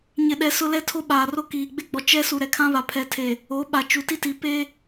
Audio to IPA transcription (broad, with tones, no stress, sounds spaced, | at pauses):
ɲ ɪ˨ ɗ ɛ˨ s ʊ˦ l ɛ˦ tʰ o˦ ɓ aː˨ r o˦ k iː˨ ɡ͡b e˦ ɡ͡b ɔ˨˦ t͡ʃ ɛ˦ s u˨ ɾ ɛ˨ kʰ ã˦ β a˨ pʰ ɛ˨ tʰ e˨ | o˨˦ ɓ a˨ t͡ʃ u˨ t i˦ t i˨ p e˦